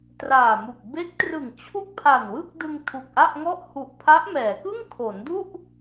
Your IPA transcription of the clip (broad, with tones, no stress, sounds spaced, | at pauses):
t r aː˨˩ m u˨˩ k̚ b e˦˥ k̚ t r ɯ˨˩ ŋ t͡ɕʰ u˥˩ k̚ pʰ a˨˩ n w ɯ˥˩ k̚ d ɯ˧ ŋ tʰ u˨˩ k̚ ʔ a˥˩ ʔ ŋ ɔ˥˩ ʔ h u˨˩ ʔ pʰ a˦˥ ʔ m ɛː˩˦ k ɯ˥˩ ŋ kʰ o˩˦ n d u˥˩ ʔ